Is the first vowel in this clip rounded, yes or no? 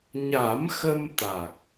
no